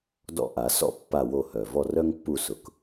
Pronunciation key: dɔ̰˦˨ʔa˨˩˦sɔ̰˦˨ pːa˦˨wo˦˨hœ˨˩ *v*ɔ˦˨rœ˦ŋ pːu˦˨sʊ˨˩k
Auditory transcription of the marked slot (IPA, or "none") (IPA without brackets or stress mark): v